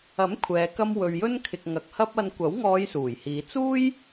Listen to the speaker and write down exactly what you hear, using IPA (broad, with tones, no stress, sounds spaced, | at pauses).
ɐ˨˥ m kʷʰ ɛː˨˧ k ɐ˥ m w ɵ˨ ɥ j ɵ˥ n kʰ ɪ˨ k̚ ŋ ɐ˨ k̚ h ɐ˥ p̚ ɐ˧ n kʷ ɐ˨˥ w ŋ ɔː˨˧ j s uː˨˩ j h iː˨˧ t͡s uː˥ j